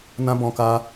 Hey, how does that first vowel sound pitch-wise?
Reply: high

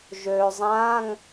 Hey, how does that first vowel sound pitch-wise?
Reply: low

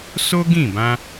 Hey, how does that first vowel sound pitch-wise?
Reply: high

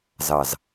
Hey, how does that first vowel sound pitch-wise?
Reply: low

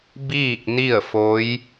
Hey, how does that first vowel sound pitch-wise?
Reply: falling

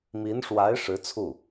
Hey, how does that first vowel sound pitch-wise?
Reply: rising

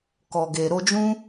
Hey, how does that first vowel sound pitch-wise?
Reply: low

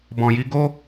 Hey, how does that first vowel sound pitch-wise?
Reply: low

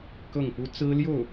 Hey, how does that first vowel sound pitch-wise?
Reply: falling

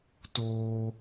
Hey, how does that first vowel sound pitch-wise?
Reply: high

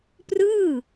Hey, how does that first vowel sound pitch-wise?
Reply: falling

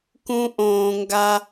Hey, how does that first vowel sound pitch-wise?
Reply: low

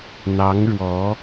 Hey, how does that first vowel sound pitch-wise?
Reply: rising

